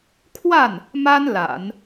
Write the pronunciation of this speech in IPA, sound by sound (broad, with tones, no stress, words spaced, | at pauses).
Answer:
kʰwa˥˩n | ma˥n la̰˨˩˦n